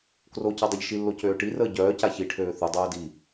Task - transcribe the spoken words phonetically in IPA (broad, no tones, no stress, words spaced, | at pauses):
kroca dˤɛʎʃilːo cøːʈirəː ɟœːca çiʈʰøː θudˤoː di